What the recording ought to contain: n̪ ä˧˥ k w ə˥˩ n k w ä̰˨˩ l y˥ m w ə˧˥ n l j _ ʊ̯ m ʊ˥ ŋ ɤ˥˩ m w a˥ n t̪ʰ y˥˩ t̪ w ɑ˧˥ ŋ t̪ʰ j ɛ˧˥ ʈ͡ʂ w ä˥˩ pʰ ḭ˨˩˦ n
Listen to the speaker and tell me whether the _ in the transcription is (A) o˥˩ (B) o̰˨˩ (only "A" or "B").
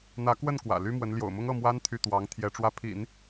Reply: B